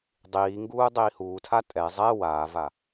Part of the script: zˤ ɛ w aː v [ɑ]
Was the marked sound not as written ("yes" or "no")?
yes